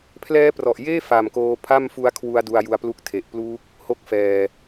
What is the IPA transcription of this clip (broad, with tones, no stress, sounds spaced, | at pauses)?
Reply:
pʰ l ɛː˦˥ p r ɔ˨˩ ʔ j eː˥˩ f a˨˩ m k oː˧ pʰ a˥˩ m f u˦˥ a̯ kʰ w u˧ a̯ d u˧ a̯ j u˧ a̯ p l u˦˥ k̚ tʰ e˨˩ ʔ p l uː˦˥ k̚ | h o˥˩ k̚ f ɛː˨˩